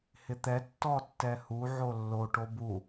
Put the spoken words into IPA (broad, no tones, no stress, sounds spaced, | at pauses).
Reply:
h ɪ t̪ ɛ tː ɔ tː ɛ h u ʕ o lː o ʈ o b u